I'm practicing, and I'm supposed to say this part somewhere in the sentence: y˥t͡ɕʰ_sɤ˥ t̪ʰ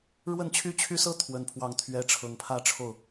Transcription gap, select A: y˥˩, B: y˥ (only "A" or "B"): B